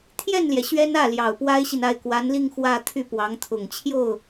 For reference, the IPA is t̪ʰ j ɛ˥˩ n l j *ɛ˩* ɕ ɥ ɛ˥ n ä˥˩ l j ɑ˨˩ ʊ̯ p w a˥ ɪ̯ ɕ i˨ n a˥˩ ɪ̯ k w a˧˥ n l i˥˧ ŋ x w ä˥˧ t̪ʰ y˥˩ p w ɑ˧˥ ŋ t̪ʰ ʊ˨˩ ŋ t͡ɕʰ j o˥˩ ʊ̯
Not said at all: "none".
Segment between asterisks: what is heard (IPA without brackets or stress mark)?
ɛ˩